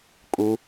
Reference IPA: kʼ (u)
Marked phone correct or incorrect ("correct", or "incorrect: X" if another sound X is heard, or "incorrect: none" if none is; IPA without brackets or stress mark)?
correct